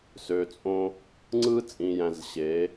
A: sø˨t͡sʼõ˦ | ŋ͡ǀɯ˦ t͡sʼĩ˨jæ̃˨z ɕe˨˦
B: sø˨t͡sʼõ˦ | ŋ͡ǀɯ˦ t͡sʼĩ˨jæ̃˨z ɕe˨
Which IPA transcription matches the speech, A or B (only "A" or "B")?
A